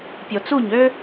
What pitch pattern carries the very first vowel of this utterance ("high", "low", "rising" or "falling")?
low